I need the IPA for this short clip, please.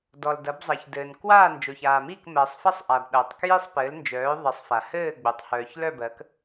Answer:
d ɔ˩ l d ɐ˩˧ b zˤ ɐ˩ ç d ɘː˩ n k w aː˦˨ n d͡ʒ o˩ ç aː˩ m i˦˨ k m ɜ˩ sˤ f ɐ˦˨ sˤ ʔ a˩ b ɗ ɐː˩ tˤ k j i˦˨ sˤ p ɘː˩˧ l n d͡ʒ œː˩˧ ðˤ ɘ˩˧ sˤ f a˩ h ɘː˦˨ ɡ͡b o˩ tˤ h œː˩ ç l œ˦˨ b ɜ˩˧ k

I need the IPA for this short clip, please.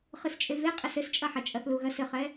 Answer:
χ ɨ s t͡ʃʼ e v e qʼ ɘ s ɘ s t͡ʃʼ ɐ ħ ɐ t͡ʃʼ ɐ θ l u ɣ ɐ s ɘ χ ɛ

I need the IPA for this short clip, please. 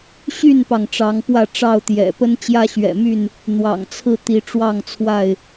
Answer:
ɕ y˥˨ n p ɑ˩ ŋ ʈ͡ʂ ɑ˨˦ ŋ p w ä˥˨ ʈ͡ʂ ɑ˥˨ ʊ̯ t̪ j ɛ̰˨˩ p ə˦ n t͡ɕ j ä˦ ɕ ɥ ɛ̰˨˩ m y˥˨ n | n̪ w ɑ̰˨˩ ŋ t͡sʰ ɹ̩˥˨ t̪ i˨˦ ʈ͡ʂ w ɑ˥˨ ŋ t͡sʰ w a˥˨ ɪ̯

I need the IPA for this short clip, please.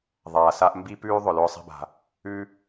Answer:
ðˤ aː˩ s a˧ ʔ m b i˥ p ʉː˥ ðˤ ʊ˩ l ʊː˧ sˤ ɛ̤˧ b a̤˩ | ʉ˧

